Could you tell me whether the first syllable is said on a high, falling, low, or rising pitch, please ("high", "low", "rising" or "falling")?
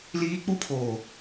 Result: high